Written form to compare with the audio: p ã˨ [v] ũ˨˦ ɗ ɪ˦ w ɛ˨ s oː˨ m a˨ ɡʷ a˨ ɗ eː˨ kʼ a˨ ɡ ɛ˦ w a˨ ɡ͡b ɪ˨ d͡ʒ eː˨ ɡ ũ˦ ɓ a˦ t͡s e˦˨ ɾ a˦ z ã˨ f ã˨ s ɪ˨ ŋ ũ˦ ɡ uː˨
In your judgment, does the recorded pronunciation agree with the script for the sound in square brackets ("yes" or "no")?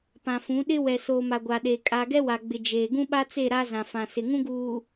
no